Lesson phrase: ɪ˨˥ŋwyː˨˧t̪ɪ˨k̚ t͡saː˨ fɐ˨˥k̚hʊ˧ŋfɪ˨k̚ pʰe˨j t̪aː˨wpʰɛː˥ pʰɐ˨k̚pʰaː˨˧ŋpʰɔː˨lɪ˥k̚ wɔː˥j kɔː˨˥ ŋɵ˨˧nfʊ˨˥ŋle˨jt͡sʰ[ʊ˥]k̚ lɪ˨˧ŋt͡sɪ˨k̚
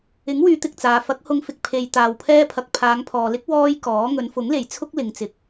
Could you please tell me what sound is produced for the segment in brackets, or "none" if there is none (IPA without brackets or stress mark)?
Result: ʊ˥